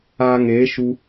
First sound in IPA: aː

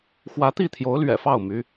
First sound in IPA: x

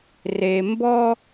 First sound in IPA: r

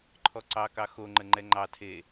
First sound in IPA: ǃʰ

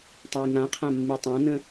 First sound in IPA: tˤ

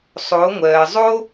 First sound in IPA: sˤ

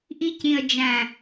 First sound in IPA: ʔ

